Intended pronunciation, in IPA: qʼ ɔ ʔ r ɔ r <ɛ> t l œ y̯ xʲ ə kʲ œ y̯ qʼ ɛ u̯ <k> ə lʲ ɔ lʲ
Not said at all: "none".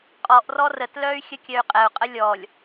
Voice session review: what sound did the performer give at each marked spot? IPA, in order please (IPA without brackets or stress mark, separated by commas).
ə, qʼ